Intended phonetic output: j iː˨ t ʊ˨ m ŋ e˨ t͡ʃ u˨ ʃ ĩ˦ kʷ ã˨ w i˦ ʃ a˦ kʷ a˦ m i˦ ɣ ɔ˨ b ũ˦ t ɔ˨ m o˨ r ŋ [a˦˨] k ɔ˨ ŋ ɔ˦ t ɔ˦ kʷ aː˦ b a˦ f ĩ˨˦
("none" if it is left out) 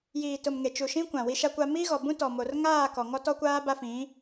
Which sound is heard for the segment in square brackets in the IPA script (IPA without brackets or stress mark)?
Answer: aː˦˨